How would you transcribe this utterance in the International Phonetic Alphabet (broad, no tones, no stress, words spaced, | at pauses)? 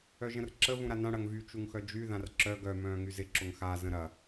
œʒə̃rǁə vũɾanã ɽɐŋvy t͡ʃuŋxœd͡ʒy ðãrǁœ ɡœ mœ̃ːŋyzɪ ǁʊŋxa zə̃ɾɐ